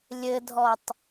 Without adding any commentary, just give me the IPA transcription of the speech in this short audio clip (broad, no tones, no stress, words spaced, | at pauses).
lʲɘdʱɔtˤ